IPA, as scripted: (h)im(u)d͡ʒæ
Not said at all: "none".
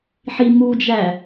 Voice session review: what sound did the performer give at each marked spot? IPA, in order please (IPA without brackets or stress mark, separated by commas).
ħ, u